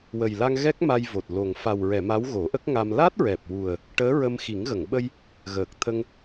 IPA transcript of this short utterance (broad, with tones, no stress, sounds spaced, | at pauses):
w ə˨˩ j l a˧ ŋ ɣ ɛ˦˥ k̚ m a˧ j v o˨˩ t̚ l o˨˩ ŋ f a˨˩ w ɹ ɛ˨˩˨ m a˧˥ w ɣ o˨˩˦ ʔ ə˦˥ k̚ ŋ a˧ m l a˦˥ t̚ ɹ ɛ˨˩ p̚ w u˨˩ ə̯ | ʈ əː˧˥ ɹ ə˧ m x i˨˩˦ ŋ ɣ ə˨˩˨ ŋ ɓ ə˧ j | ɣ əː˨˩ k̚ t̪ʰ ə˧ ŋ